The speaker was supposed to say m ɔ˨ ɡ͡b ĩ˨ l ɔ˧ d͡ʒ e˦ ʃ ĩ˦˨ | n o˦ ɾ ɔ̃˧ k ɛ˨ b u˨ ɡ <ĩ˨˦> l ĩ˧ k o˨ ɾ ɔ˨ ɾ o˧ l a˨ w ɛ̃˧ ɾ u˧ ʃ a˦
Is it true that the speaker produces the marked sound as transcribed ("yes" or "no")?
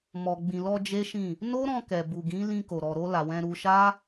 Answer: yes